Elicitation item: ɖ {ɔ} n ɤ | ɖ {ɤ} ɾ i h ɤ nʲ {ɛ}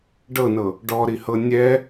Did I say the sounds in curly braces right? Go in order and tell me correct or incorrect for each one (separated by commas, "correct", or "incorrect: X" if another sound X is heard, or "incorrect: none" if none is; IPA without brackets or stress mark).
incorrect: ɤ, incorrect: ɔ, correct